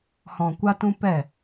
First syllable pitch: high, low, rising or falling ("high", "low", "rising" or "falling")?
low